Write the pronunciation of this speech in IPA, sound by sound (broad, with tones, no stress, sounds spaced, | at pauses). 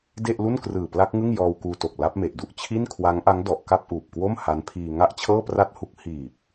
d e˥˩ ʔ l u˥˩ n k r ɯː˨˩ p l a˦˥ k̚ ŋ ɯ˥˩ ŋ j ɔː˧ w k uː˧ t o˨˩ k̚ l a˦˥ p̚ m e˨˩ ʔ d u˥˩ ʔ t͡ɕʰ i˥˩ n kʰ w a˦˥ ŋ ʔ a˦˥ ŋ d ɔ˨˩ ʔ k a˥˩ p̚ ʔ uː˨˩ p̚ k w o˥˩ m h a˦˥ n pʰ iː˧ ŋ a˥˩ ʔ t͡ɕʰ ɤː˥˩ p r a˥˩ t̚ h u˦˥ k̚ h iː˨˩ p̚